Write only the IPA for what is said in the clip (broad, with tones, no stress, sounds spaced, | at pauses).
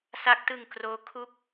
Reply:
s a˦˥ k̚ t ɯ˧ ŋ k r oː˦˥ kʰ u˥˩ k̚